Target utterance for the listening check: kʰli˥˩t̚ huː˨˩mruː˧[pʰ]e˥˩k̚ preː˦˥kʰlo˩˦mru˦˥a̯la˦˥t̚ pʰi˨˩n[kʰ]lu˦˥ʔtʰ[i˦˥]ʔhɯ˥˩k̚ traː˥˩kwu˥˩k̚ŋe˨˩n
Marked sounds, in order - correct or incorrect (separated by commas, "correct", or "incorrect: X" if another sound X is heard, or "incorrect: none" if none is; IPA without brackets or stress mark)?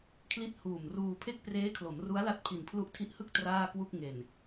correct, incorrect: pʰ, correct